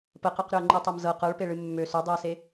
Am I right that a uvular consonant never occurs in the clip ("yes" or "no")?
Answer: no